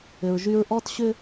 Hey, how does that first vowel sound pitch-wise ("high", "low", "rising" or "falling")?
low